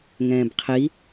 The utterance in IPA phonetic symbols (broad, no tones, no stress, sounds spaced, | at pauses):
ŋ ɛ̃ː b qʰ i